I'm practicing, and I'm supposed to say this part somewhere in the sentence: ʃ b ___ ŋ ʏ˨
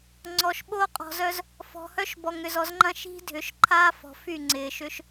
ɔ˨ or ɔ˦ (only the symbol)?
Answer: ɔ˨